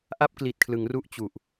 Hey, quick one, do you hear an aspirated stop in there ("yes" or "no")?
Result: yes